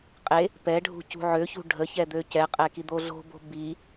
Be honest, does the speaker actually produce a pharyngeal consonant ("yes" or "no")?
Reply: yes